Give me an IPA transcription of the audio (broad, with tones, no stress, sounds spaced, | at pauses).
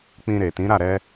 k͡p ĩ˧ ɾ e˨ t ĩ˨˦ ɾ a˦˨ ɾ ɛ˧